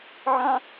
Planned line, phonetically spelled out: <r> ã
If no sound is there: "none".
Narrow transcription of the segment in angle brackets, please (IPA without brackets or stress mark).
ʕ